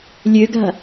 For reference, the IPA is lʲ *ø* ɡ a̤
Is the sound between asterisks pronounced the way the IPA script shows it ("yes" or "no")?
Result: yes